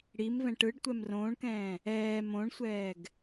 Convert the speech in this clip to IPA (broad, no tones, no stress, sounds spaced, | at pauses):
ɽ i m v ɛ̃ ʈ ɯ ɖ tʷ ɛ m r õː ɳ k ɛ̃ː | ɛː m õ ɳ sʷ ɛː ɡ